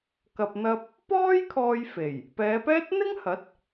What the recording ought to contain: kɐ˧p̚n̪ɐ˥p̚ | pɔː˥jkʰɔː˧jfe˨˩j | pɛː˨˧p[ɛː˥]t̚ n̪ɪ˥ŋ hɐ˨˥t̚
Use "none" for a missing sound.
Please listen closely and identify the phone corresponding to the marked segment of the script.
ɛː˥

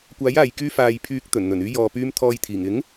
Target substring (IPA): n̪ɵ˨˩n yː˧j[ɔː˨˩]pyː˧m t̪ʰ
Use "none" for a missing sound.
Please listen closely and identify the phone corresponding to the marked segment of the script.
ɔː˨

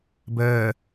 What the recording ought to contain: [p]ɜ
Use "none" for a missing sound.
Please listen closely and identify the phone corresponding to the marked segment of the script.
b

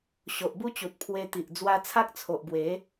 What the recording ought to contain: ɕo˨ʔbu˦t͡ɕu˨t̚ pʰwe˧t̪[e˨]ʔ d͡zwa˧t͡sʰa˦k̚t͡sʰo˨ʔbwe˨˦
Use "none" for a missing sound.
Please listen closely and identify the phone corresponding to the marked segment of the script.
i˨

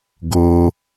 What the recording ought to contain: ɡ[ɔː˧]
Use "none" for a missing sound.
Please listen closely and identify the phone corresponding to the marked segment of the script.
oː˧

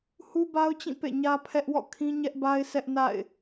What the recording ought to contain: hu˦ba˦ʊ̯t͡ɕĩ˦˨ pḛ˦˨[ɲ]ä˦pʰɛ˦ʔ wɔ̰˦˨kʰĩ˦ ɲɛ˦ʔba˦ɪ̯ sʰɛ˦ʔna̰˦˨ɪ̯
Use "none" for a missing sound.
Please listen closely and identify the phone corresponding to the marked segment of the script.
ɲ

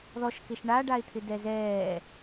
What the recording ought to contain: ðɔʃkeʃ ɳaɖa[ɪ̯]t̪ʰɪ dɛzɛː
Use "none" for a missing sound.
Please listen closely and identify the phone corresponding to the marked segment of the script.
ɪ̯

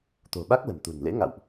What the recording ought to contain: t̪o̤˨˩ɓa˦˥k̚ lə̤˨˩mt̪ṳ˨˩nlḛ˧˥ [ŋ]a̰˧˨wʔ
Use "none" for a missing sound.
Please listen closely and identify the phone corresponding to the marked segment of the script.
ŋ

